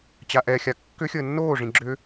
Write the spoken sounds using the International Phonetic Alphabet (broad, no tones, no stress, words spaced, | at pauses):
t͡ɕaʔɛxʲa kːʏxʲəː nːoːʐĩ ɡ͡ǁʏː